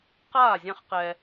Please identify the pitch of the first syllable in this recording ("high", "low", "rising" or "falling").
falling